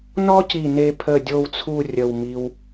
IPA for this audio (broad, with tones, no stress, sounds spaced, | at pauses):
n ɔ˥ c i˧˩ n e˧ pʰ ə˧˩ dʲ o˥˧ w t͡sʰ u˥˧ rʲ ə˧˩ w m i˧ w